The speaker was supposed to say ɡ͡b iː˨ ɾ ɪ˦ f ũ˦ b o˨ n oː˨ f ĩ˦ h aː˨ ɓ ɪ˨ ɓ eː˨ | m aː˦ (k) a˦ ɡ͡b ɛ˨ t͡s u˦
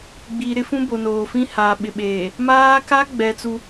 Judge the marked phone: correct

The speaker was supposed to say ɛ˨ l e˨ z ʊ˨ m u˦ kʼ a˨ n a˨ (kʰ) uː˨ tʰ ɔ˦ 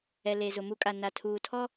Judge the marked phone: incorrect: tʰ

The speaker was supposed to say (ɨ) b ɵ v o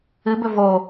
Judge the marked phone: correct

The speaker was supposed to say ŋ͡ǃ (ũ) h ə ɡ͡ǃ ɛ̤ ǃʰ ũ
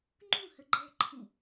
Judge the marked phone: correct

